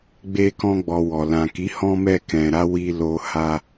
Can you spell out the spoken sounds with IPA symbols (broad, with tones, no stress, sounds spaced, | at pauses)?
ɡ͡b e˧ k ɔ̃˧ ɡ͡b ɔ˨ w ɔ˨ l ã˨ k i˨˦ h ɔ̃˧ m ɛ˧ k ɛ̃˨ ɾ a˧ w i˧ l o˧ h a˧